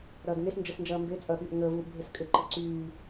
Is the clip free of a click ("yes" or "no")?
no